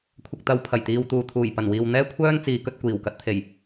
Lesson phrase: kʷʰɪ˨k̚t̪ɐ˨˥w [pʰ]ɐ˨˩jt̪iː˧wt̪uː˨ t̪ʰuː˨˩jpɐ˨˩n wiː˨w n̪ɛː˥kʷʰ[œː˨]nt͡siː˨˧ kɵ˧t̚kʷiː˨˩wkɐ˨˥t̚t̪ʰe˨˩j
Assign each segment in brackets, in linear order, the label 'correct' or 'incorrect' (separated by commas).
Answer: correct, incorrect